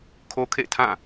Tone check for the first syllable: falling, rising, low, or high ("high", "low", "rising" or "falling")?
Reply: high